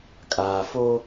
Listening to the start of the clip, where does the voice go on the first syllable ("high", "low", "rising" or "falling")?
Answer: low